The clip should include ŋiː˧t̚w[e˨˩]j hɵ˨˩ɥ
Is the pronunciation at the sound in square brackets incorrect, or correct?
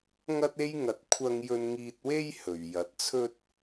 incorrect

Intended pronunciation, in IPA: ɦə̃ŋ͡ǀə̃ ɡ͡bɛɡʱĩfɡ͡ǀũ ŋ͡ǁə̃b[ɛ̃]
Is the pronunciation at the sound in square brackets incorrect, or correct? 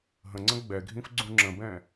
correct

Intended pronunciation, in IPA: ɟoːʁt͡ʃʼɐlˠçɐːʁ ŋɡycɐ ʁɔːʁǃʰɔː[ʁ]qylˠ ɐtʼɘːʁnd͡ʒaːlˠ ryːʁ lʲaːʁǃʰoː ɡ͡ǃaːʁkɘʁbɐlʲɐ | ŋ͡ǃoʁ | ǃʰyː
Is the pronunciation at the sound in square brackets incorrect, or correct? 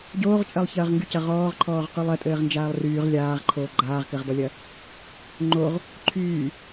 correct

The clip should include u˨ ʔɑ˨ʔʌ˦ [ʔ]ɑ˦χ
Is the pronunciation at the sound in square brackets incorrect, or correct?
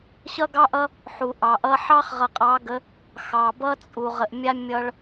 incorrect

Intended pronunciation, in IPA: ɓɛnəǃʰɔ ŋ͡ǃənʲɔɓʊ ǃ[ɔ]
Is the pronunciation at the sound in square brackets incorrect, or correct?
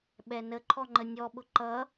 incorrect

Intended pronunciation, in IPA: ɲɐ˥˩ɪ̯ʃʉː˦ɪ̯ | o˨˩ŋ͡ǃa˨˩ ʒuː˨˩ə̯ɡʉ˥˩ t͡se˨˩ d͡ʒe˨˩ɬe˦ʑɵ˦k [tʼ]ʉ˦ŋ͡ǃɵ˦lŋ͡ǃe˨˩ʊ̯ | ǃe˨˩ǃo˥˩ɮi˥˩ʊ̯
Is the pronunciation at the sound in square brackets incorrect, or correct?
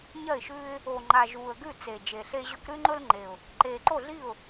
incorrect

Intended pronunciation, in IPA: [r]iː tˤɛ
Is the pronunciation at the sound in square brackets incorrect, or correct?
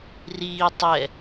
correct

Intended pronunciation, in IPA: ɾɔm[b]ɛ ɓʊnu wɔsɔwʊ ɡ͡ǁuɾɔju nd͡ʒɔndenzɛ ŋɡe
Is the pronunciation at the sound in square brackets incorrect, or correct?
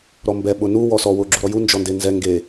correct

